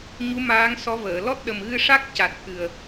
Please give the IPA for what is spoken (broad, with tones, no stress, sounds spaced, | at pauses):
ɲ u˧˥ m aː˧˥ ŋ s ɔ˧˥ v əː˨˩˨ l ɔ˦˥ t̚ ɗ ə˨˩ m ɣ ɨ˧ ʂ a˦˥ k̚ c a˨˩ t̚ t̪ʰ ɨ˨˩ ə̯